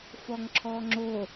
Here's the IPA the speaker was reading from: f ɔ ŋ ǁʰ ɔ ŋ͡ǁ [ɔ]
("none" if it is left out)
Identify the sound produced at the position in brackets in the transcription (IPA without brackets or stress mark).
o